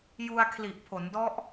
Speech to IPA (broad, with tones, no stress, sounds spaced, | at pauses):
j u˧ a̯ kʰ l i˨˩ ʔ pʰ o˩˦ n d ɔ˦˥ ʔ